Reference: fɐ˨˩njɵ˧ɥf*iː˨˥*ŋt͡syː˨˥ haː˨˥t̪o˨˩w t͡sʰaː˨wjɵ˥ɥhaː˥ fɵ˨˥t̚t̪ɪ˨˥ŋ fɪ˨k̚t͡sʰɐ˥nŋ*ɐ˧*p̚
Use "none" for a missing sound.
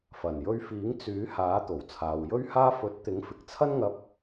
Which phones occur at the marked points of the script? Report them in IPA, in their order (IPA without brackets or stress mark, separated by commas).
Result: iː˨˥, ɐ˧